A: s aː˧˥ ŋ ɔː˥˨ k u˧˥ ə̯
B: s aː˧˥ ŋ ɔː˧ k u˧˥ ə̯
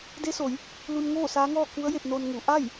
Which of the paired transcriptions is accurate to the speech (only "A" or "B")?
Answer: A